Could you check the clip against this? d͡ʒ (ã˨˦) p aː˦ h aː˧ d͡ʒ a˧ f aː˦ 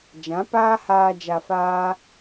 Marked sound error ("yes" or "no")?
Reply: no